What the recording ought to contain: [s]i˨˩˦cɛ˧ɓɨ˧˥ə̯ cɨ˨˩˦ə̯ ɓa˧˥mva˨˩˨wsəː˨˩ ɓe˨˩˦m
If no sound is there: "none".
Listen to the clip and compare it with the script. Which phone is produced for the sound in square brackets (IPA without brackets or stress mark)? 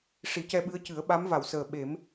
ʂ